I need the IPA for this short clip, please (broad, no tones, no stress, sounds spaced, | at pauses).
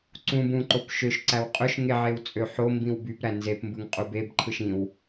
ǀ ũ b ũ ǃ o p ʃ ø ʃ ǀ æ w qʼ ø ʃ ŋ e ʕ e w t͡sʼ ø ħ o m b ĩ w b y p ɾ æ n z e p m b ɯ ŋ qʼ u b e b ǃʰ ɯ ʃ ĩ w